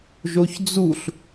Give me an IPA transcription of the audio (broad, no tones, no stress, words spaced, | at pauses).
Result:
ʒoçd͡zuɬ